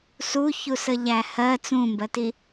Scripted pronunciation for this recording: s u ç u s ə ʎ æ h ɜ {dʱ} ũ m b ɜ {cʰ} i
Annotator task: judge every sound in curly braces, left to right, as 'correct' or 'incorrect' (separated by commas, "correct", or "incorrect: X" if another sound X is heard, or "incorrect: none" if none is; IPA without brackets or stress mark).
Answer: incorrect: t͡s, incorrect: t